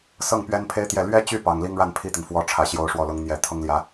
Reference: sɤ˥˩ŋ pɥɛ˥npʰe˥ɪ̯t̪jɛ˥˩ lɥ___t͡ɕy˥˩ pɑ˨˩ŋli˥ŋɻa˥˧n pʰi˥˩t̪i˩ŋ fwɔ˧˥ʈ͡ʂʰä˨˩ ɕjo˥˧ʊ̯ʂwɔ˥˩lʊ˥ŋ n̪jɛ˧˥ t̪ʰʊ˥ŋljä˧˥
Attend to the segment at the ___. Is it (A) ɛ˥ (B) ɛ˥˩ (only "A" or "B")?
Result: A